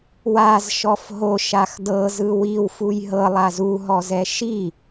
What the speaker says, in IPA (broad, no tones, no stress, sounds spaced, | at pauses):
w a z ʃ ɔ f ɦ o ʃ a x d ɤ z ɯ w i w f u j ɦ ɤ lˠ a z u ɦ ɔ z ɛ ʃ i